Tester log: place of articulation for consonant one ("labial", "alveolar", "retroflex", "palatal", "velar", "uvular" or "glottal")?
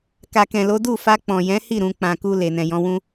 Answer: velar